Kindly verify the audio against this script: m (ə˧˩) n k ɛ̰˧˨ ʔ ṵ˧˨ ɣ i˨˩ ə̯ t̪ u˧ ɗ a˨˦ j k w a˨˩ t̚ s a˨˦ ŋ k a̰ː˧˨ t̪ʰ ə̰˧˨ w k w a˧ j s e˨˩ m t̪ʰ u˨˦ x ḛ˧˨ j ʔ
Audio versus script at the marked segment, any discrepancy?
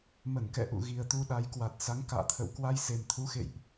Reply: no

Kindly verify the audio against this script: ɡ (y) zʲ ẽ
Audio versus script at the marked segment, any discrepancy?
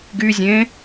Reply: no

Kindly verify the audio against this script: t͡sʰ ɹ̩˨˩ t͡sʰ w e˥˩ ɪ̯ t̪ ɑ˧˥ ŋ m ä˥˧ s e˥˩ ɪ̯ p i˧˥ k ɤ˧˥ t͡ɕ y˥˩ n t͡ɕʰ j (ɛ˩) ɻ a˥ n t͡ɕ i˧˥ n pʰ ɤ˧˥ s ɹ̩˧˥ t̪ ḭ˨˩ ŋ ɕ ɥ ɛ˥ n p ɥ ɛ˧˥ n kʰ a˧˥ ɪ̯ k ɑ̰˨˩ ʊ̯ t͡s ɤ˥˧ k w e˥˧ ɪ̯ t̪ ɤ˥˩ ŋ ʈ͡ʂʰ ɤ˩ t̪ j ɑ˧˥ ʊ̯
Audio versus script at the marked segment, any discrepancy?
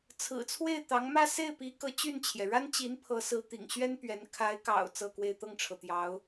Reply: no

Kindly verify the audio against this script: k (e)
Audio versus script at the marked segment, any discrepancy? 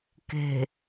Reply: yes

